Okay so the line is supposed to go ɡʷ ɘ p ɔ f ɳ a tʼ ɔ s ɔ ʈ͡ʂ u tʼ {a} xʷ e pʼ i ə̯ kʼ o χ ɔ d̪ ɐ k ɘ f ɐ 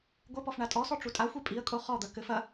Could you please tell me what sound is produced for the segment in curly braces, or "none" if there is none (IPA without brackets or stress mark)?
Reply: a